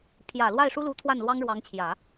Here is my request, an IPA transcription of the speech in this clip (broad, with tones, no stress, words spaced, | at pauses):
pʰjä˨˩ lwa˥˩ɪ̯ʂu˥lu˧˥ t̪ʰwa˥˩nlwɑ˥ŋɻwɑ˧˥ŋt͡ɕʰjä˨˩˦